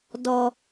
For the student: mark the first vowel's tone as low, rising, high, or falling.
high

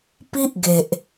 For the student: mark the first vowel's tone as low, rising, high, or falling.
high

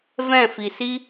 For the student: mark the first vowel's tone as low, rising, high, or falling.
falling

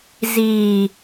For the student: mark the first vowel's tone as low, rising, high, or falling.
low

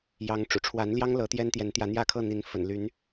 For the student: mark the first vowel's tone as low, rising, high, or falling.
rising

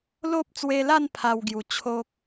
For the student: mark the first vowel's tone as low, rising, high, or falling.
high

